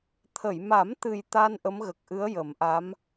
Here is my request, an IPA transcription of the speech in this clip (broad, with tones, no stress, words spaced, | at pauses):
t̪ʰə˨˩˨jma˨˩˦mt̪ɨ˨˩j t̪a˧n ʔə˧˥mɣə˨˩k̚ʔɨ˧˥ə̯ jə˨˩˦mʔa˧˥m